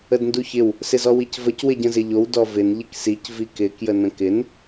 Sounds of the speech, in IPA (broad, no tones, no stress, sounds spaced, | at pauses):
ə d n d u ç ɪ w | s ɪ z ɔ w i c v ə c w ɪ ɟ ə̃ z ɪ ʎ o w d ɔ v ɪ n ʎ ɪ k s i c v i k ɪ k j ə n ə̃ k ɪ n